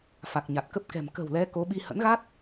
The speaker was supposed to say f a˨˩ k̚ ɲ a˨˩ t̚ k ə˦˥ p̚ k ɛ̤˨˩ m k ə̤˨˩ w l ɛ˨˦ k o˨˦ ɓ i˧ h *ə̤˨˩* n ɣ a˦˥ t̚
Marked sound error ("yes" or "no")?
yes